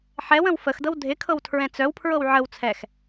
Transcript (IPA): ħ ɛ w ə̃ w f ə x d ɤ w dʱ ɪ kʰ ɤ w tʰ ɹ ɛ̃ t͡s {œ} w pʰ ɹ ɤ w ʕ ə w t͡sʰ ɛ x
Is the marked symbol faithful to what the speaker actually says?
yes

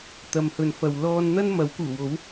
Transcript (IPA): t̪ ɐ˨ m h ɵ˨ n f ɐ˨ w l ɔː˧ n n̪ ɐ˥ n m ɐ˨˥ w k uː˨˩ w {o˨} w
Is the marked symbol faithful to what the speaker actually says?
no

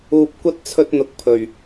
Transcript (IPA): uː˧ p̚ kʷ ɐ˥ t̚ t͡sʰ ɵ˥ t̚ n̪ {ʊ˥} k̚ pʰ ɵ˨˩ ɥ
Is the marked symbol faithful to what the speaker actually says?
no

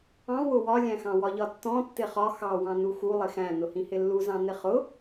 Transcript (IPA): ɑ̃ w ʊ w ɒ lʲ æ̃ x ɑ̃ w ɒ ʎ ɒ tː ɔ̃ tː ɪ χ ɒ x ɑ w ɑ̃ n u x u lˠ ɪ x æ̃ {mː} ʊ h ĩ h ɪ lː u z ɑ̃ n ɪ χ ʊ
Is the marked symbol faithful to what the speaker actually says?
no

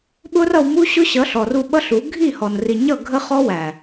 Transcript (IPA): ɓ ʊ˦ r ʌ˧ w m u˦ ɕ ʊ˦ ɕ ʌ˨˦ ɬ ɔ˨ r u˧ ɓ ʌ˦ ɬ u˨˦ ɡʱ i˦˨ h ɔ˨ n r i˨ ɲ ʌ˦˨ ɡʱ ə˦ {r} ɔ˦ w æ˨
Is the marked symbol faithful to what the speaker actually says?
no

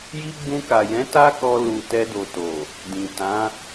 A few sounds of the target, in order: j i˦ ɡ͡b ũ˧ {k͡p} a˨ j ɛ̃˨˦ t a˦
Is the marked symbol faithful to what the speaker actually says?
no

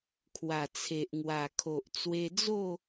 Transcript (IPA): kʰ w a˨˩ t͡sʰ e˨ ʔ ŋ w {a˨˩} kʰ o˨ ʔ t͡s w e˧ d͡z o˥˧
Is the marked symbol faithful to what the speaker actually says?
yes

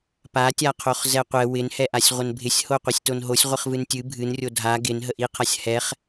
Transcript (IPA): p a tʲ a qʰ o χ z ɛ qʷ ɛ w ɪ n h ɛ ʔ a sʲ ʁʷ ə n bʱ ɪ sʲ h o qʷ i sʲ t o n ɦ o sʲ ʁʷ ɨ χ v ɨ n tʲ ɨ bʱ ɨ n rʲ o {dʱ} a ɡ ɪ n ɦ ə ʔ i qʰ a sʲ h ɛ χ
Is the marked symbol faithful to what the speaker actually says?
yes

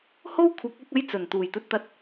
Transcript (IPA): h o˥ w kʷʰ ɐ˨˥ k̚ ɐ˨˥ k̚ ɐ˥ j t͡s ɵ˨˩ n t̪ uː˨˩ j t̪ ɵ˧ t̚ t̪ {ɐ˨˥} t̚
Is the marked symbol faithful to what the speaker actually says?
no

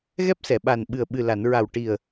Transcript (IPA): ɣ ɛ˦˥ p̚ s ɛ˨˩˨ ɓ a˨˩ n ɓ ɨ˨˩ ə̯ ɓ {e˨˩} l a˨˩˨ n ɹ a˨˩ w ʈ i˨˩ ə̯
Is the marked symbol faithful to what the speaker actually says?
no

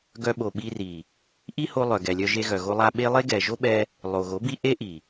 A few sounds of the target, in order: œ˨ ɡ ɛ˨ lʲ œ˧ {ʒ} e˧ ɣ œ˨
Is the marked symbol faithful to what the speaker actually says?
yes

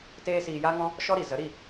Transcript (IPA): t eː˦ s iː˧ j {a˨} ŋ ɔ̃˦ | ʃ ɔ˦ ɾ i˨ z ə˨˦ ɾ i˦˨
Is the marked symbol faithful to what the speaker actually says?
no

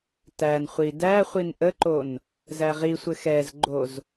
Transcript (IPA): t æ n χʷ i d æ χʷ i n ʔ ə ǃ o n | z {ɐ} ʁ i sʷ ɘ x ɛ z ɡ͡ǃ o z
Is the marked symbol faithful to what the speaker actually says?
no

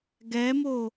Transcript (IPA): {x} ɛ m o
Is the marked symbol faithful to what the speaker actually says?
no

